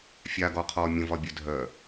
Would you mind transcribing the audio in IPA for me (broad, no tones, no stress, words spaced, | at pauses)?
fʲaɡɔqʰɔː mʲə̃vɒbʲœ dʱœ